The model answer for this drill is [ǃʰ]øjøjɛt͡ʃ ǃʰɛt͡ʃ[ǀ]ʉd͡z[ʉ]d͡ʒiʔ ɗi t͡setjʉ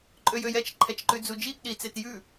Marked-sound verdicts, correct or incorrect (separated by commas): incorrect, incorrect, incorrect